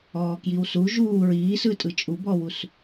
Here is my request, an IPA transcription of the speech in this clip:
ɔː k j i w s u ʒ uː ɹ iː s ɯ tʼ ɯ t͡ʃʼ u b ɔ w u s

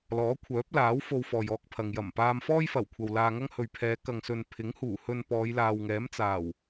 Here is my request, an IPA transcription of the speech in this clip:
l ɔː˨˥ kʷʰ œː˨˥ p̚ l aː˨˥ w f o˧ w f ɔː˨ j ɔː˧ k̚ pʰ ɐ˨ ŋ j ɐ˨˩ m p aː˧ m f ɔː˥ j f ɐ˨˩ w kʷʰ ɐ˨ w l aː˧ ŋ ɐ˥ ŋ h ɵ˨ ɥ pʰ ɛː˨˧ k ɐ˨ ŋ s ɵ˨ n pʰ ɪ˨˥ ŋ h uː˨˩ h ɵ˧ n p ɔː˨˧ j l aː˨ w ŋ ɛː˨˥ m t͡s aː˨˩ w

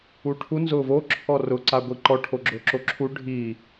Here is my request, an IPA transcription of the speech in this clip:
u ʈʰ u n z ʊː v o ǁʰ ɔ r ʊ ǀ a ɡʷ i ǃ ɔ ʈʰ o ɡ͡ǁ ʊː ǁ o ǁʰ u ɖʱ i

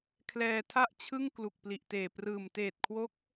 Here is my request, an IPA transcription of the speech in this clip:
kʰ l ɛː˧ tʰ a˥˩ ʔ t͡ɕʰ ɯ˥˩ ŋ k l u˨˩ k̚ p l i˨˩ ʔ t eː˨˩ p r ɯː˨˩ m t eː˨˩ t̚ kʰ w o˦˥ k̚

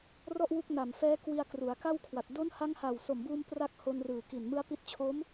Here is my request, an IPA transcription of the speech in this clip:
r ɔ˥˩ ʔ w u˦˥ k̚ n a˨˩ m f ɛː˦˥ k w i˧ a̯ k r u˩˦ a̯ k a˥˩ w kʰ w a˨˩ t̚ d o˦˥ n h a˦˥ ŋ h a˨˩ w s o˨˩ m b uː˧ m p r a˦˥ k̚ h o˧ n r ɯː˨˩ k i˨˩ n m ɯ˦˥ a̯ p i˦˥ t̚ t͡ɕʰ o˦˥ m

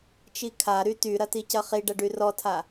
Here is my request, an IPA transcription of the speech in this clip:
t͡ʃ i kʰ a ɾ y t y ɾ ɐ t i c ɐ χ i ɖ ɐ ɖ y r ɔ tʰ a

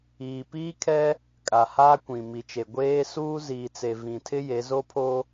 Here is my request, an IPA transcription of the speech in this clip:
iː˨ p iː˦ kʰ ɛ˦ | kʼ a˨ h aː˦ kʷ ĩ˨ m i˨ t͡ʃ e˨ ɡʷ eː˦ s uː˦ z iː˨ t͡s e˨ v ĩ˨ tʰ ɪ˦ j e˨˦ z o˦ pʰ o˦

